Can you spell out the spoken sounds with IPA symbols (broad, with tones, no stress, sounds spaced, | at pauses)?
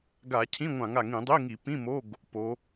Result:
ɡ a˧˩˧ cʰ ĩ˧˥˧ ŋʷ ã˧˩˧ ŋ a˨˩ ŋ ĩ˧˩˧ dˤ i˧˥˧ ŋ i˧˩˧ p ĩ˧˥˧ m o˧˥˧ ɡ | p o˨˦